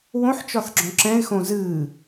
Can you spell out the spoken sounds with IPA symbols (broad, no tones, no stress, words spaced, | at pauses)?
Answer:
wõħt͡ʃɒθɡ͡ǁɔ̃ ǁɛ̃ɪ̯xõ zɨː